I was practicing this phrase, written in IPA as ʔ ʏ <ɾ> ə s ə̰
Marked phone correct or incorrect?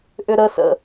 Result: correct